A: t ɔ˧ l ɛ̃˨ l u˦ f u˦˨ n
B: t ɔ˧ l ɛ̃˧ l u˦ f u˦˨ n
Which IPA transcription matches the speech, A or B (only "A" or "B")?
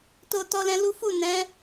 B